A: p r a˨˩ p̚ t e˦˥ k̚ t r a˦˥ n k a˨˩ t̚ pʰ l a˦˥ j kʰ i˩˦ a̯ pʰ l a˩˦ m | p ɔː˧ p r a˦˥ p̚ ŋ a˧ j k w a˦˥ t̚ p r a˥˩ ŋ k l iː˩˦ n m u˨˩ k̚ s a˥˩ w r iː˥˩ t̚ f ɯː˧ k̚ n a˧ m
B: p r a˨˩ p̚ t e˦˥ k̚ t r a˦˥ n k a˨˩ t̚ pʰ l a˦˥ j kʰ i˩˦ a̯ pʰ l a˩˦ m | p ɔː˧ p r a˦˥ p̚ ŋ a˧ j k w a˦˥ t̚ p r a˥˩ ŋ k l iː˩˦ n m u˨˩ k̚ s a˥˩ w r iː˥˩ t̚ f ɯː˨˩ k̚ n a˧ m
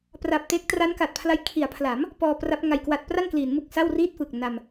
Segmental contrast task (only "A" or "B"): B